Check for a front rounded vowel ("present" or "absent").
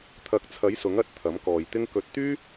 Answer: present